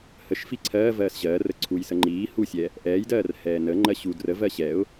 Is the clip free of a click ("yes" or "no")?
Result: no